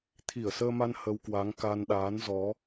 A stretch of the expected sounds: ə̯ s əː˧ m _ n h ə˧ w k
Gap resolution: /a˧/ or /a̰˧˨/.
a˧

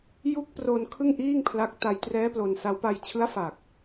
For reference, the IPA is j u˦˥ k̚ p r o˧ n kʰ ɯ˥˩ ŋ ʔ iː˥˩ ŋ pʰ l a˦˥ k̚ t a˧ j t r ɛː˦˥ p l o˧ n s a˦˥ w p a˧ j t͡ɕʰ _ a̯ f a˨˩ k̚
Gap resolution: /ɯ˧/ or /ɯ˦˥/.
ɯ˦˥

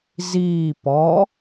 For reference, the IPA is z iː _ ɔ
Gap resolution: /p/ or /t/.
p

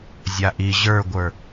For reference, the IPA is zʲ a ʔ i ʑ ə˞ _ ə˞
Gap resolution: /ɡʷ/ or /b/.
ɡʷ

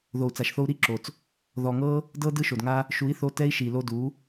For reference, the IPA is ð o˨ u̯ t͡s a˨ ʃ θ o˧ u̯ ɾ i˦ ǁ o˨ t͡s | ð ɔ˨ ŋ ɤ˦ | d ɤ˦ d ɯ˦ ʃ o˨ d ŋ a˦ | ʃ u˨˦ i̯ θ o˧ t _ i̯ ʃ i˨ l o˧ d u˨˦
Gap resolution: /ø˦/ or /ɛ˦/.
ɛ˦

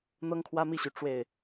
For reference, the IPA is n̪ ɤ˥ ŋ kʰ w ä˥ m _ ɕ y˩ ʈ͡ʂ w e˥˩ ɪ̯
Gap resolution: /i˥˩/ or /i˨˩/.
i˥˩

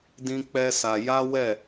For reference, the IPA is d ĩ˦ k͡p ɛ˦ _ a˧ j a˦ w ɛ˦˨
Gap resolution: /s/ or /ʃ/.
s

